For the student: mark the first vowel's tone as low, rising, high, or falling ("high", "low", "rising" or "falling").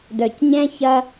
low